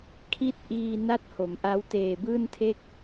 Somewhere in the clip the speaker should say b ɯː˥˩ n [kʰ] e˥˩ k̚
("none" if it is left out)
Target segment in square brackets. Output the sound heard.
tʰ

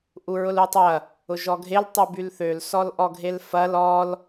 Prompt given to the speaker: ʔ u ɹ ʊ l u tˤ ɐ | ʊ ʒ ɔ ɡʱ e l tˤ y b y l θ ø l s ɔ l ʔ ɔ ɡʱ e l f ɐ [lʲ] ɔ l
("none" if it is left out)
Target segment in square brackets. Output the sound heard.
l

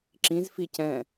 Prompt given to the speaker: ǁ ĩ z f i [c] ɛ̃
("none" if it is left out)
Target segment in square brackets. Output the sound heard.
c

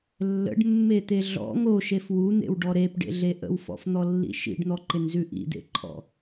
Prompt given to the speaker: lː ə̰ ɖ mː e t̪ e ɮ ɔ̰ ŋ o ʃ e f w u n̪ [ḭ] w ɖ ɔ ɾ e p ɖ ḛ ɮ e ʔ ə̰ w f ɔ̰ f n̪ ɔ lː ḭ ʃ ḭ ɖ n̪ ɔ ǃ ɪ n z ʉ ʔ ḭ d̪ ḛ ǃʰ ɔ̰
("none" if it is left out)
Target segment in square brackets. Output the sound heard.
ḛ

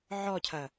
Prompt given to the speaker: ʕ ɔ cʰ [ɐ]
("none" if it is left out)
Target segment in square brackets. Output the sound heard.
ɐ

